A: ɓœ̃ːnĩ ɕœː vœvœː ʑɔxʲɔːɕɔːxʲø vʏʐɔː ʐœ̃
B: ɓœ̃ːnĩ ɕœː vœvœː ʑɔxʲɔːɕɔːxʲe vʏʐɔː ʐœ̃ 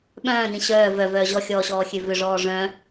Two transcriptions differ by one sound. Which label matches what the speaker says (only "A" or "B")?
A